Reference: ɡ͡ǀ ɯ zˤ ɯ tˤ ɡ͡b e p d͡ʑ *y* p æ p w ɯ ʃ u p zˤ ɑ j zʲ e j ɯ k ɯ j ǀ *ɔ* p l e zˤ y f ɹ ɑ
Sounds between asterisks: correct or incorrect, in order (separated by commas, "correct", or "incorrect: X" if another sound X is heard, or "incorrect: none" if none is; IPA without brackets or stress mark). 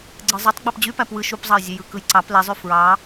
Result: correct, incorrect: ɑ